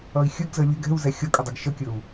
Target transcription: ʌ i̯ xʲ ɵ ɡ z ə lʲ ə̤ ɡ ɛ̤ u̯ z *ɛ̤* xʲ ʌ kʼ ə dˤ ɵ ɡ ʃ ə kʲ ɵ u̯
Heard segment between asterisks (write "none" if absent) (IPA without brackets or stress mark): ɛ